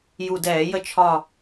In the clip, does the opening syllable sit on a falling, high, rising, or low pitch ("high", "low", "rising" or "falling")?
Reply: low